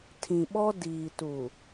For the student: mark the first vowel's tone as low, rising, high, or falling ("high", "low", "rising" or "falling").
low